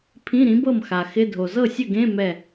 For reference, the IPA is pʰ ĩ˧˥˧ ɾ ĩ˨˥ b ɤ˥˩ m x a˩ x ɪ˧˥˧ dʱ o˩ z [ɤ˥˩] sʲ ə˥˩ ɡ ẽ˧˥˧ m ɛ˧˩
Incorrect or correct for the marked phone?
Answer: correct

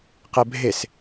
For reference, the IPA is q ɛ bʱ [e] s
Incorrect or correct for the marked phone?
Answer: correct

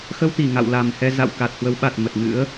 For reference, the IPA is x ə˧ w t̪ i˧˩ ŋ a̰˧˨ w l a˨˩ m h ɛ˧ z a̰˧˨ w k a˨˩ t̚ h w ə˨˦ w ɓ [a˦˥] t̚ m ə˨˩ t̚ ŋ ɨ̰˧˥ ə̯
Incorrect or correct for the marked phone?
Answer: incorrect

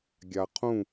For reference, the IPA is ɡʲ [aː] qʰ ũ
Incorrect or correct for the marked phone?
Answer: incorrect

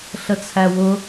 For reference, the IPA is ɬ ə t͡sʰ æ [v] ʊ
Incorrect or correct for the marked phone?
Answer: incorrect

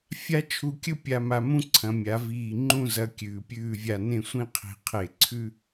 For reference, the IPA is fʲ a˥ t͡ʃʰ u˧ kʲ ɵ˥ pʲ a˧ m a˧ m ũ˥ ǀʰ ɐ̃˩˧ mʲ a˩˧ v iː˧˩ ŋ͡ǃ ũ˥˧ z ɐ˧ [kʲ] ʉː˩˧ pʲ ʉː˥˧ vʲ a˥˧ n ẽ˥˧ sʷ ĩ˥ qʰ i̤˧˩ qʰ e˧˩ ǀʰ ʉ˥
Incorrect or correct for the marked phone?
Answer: correct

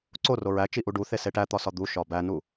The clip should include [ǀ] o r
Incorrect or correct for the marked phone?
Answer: correct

